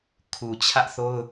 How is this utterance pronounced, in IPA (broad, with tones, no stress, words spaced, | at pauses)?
kʰu˨t͡ɕʰä˦ʔθo˦ʊ̯